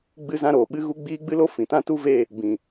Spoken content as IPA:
ɡ͡bɨ˦zã˦ɾoː˨ ɓɨ˦ ɣu˦ɡ͡biː˦ ɡ͡bɨ˦lo˦ fĩ˨tã˦tu˦ve˦˨ | bĩ˨

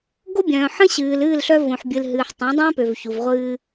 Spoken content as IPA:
ɡo˦ bʲœ̃ː˨ ħə̃˦ɕɨː˨l ɨː˦˨lɬœ˦ võ˨ħbʲɨ˨lɦɨː˨ħ tˤũ˨˦dˤœ̃ː˦pø˨vçu˨v ʁʷɨː˦

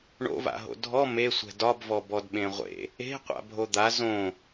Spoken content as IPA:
ɳo̰va̰ɦo̰ dʱɔ mesʷɛ̤ dɒbvɔ bɔdɓẽʁʷḛ | e̤qʷa̰ bʱod̪a zõ

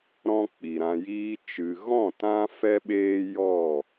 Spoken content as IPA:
ɾɔ̃˦k͡pi˨ɾã˧ jiː˧t͡ʃɨ˨ɣɔ̃˦˨ tã˦fɛ˦ɓeː˦ jɔ˦˨

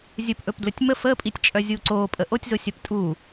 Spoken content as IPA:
zʲɵpʔɵpdlɵtʲ mə fəːpʼitʲt͡ʃʼœzʲuː ǀoːpʼə ʔotʲzosʲœp tʼuː

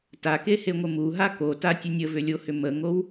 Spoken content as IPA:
takeheŋʷə muɦa kotatʲə nʲəvʏlʲohʏ məŋow

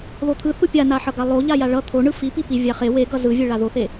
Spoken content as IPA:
ðot̪ʰɯ θupʲanaħʌ ɡalˠo ʎajaɭʌ t̪ʰoɳɯ fipipi vʲaχe weɡʌ zɯvʲe ɭaðoθe

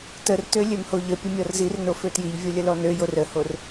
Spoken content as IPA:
tərtø lʲømhoʎəpʲə mʲɔrzirno føtjiʎvʲo lʲəlɔnøjor əhor

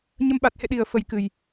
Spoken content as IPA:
ɲə˧mɓa˨˩t̚hḛ˧˨ɗi˨˩ə̯ fə˨˩jkɨ˨˩j

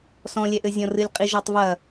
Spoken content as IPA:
sɔ̃lʲɛʔɘzʲɔ̃ rɨlʲqʼiʒɔtˤvɐ

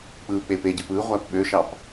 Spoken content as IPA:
k͡pɯːk͡pepeɟɯp ɯ ʁʷæpɓøʃɑp

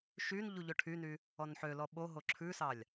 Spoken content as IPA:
ʃyn ʎuʎɵʈʰyny | ɔnħølɔ ɓo ɦoǁʰʉsɑlʲ

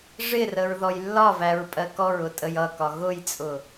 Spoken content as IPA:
ʐɪrəɹ ðɔjlːɒvæɹ pʼɜkɔɹʊ tʼəjʌkɒ ɣʊjt͡sʼʊ

